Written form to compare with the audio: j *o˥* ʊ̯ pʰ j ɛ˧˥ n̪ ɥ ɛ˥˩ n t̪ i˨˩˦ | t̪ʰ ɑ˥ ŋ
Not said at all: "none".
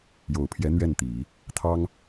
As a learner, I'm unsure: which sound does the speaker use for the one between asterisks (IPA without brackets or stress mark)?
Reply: o˨˩